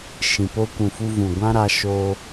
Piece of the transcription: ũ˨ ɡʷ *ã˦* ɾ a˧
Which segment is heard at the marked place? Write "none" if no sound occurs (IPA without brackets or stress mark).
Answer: ã˦